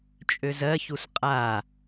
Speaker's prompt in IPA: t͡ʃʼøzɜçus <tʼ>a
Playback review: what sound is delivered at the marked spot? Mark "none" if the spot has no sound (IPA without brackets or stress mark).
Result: qʼ